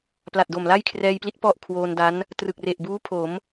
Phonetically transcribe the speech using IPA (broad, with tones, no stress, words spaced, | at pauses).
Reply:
pla˨˩t̚do˨˩mla˥˩j kʰrɛː˧jpli˦˥t̚ pɔ˥˩ʔkʰwoː˧nda˦˥n | trɯ˨˩k̚re˨˩ʔbuː˦˥ pʰo˩˦m